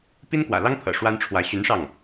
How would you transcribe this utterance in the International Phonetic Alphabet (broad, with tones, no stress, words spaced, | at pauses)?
pi˥nkwä̰˨˩lɑ˥ŋpʰɤ̰˨˩ ʂwa˥nʈ͡ʂʰwä˧˥ ɕy˧˥nʂɑ˥˩ŋ